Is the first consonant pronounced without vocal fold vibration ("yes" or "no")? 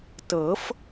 yes